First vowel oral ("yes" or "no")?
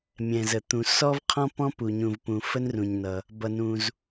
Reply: no